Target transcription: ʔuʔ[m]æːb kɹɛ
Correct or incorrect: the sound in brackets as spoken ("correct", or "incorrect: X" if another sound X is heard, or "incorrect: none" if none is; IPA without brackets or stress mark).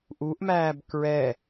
correct